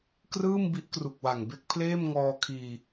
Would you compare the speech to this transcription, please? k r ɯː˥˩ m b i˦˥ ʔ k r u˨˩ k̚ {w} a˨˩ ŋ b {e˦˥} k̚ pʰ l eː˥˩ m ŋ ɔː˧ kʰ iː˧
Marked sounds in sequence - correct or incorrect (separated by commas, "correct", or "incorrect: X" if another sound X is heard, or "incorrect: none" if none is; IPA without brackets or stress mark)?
correct, incorrect: e˥˩